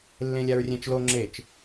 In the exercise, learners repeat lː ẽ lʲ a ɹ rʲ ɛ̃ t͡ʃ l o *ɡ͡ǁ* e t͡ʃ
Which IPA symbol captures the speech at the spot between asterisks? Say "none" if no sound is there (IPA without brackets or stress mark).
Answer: ŋ͡ǁ